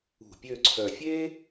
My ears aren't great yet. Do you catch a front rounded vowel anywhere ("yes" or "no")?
yes